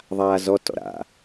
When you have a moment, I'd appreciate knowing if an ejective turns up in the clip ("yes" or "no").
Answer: no